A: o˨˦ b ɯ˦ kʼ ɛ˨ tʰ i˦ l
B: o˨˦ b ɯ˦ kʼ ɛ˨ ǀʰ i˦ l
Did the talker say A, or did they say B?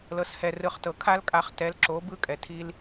A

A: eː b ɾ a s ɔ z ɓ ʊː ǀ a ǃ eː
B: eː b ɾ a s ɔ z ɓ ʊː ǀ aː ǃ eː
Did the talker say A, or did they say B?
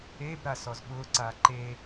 B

